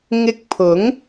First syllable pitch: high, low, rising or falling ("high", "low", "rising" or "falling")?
high